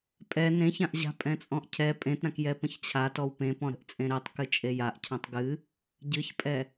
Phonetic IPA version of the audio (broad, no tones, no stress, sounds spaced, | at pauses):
pʼ ɛ n ẽ ç ã ʔ ʑ a̤ pʼ ɛ̃ t͡sʼ ɔ̃ ʔ cʰ ɛ pʼ ẽ t ɾ ã k j ɛ p ə̃ ç t͡ɕʰ a t ɔ w p ẽ p ɔ̃ ɾ ə̤ ʔ t͡sʼ ẽ ɾ e tˤ k ɨ t͡ʃʼ e j a ʔ cʰ ã tˤ ɡ ɨ | ɟ ɨ ç pʼ ɛ